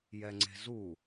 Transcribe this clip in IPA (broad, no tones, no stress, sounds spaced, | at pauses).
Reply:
j ɛ ŋ͡ǀ e̤ z u